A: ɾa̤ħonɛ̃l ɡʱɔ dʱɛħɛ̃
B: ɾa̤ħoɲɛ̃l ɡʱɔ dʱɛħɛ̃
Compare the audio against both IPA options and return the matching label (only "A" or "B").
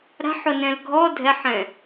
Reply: A